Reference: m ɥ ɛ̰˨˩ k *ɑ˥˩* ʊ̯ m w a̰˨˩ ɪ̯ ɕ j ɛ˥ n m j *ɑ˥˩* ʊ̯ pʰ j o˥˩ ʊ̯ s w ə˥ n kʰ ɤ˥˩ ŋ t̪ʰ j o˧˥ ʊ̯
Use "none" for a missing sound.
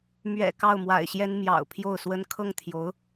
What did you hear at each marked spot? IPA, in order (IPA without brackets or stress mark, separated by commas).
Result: ɑ˥˩, ɑ̰˨˩